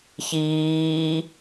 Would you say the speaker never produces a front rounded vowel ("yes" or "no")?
yes